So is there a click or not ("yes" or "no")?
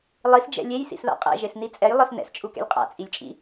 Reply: no